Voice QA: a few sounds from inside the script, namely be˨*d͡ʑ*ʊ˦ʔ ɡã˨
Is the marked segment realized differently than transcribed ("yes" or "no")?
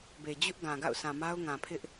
no